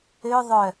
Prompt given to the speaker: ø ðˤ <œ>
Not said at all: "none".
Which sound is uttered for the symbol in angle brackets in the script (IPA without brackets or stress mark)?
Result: œ